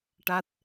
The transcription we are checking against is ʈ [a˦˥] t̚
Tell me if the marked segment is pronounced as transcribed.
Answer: yes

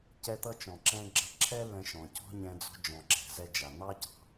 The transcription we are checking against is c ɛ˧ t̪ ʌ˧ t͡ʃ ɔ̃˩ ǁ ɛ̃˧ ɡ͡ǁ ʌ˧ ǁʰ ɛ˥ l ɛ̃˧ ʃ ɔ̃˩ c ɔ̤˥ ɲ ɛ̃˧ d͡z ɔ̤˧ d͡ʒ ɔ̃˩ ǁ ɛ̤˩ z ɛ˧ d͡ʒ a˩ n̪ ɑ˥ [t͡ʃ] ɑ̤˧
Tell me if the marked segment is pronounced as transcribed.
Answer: no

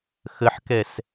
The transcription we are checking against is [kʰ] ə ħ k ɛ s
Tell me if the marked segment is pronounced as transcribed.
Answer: no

